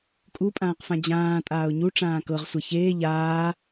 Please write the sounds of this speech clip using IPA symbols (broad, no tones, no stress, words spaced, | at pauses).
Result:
kʼupʼãːqfã d͡ʑãːtʼaːʊ̯ ɲuʈ͡ʂãː kɤʁsʷɛ çeː ʎaː